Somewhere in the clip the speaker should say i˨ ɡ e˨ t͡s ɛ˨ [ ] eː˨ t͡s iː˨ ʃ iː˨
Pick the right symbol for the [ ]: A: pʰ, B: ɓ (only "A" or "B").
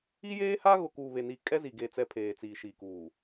A